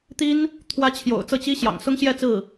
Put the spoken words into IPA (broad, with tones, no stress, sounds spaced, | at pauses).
t̪ i˥ n | t̪ʰ w ä˧˥ t͡ɕʰ j o̰˨˩ ʊ̯ t͡s ɤ˥˩ t͡ɕ i˥ ɕ j ɑ̰˨˩ ŋ s ʊ˥ ŋ ɕ j ɛ˥˧ t͡s ɹ̩˥˩